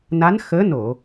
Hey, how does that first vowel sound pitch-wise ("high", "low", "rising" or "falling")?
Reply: rising